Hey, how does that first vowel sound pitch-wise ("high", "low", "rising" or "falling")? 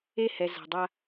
falling